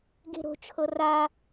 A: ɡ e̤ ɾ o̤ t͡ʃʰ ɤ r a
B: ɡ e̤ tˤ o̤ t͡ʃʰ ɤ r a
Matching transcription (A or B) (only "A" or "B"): A